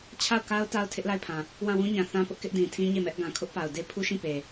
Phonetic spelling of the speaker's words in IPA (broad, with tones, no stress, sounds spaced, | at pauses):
t͡ɕʰ a˦˨ ʊ̯ k a˦ ʊ̯ t a˦ ʊ̯ tʰ ɪ˦ ʔ l a˦˨ ɪ̯ pʰ ã˨ | w ã˦˨ w ũ˦ ɲ ã˨ θ ã˦ p ʊ˦ ʔ k ɪ˦ ʔ d ĩ˨ tʰ ĩ˦ ɲ e˦˨ m ɛ˦ ʔ ɡ ã˨ kʰ ʊ˦ ʔ p a˨ ʊ̯ d e˦ pʰ u˦ ʃ ĩ˦˨ p e˨